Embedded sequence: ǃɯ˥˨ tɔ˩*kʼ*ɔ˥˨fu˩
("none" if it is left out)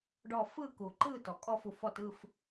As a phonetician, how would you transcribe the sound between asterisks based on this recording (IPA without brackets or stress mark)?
kʼ